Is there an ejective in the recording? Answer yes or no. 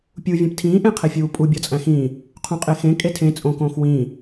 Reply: yes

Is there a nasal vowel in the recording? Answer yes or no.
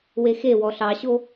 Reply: no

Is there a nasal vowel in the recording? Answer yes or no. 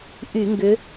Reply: no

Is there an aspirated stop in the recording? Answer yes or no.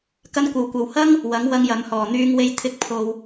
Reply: yes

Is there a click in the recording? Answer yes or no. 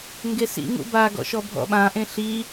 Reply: no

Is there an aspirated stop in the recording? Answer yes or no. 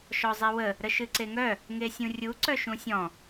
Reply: no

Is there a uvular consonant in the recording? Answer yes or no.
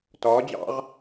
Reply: yes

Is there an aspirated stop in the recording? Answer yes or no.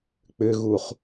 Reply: no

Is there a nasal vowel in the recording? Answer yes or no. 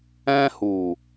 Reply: yes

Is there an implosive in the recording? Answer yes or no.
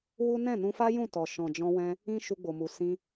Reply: no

